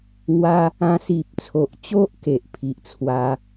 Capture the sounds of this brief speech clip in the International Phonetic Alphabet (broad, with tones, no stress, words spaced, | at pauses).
ŋwa˦ | ã˧si˨p̚t͡sʰo˨ʔt͡ɕo˦ʔ ke˨ʔ pʰi˨ʔt͡sʰwa˧